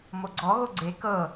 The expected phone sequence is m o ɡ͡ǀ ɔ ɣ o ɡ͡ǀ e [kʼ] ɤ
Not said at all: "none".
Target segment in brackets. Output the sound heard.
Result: k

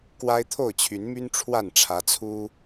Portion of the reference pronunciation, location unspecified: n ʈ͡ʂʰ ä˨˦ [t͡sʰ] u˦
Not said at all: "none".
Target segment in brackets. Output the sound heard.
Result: t͡sʰ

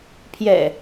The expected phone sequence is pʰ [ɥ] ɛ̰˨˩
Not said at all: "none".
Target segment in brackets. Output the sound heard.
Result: j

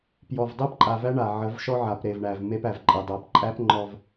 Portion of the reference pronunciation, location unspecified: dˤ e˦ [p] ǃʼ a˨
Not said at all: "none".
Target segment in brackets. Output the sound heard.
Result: p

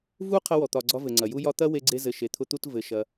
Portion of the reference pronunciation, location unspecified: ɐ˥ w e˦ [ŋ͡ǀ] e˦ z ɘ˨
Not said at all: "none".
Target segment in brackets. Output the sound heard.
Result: ɡ͡ǀ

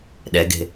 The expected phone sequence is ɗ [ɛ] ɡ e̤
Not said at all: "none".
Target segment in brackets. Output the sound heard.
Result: ɛ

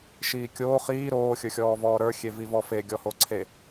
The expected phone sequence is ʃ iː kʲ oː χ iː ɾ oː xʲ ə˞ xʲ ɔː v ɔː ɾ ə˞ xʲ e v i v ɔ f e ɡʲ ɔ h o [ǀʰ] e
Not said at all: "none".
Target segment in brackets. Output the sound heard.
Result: ǀʰ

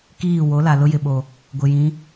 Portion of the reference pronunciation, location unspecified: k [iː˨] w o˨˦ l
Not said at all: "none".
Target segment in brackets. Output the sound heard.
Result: iː˦˨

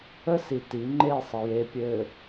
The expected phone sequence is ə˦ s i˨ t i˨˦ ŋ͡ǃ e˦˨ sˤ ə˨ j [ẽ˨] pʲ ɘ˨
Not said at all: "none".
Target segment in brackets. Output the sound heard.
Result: e˨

